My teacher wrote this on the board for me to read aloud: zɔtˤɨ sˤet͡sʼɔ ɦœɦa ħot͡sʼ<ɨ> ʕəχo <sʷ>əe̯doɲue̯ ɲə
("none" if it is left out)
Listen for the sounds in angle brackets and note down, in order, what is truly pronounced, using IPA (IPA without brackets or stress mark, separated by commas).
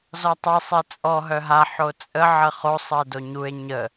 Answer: ə, sˤ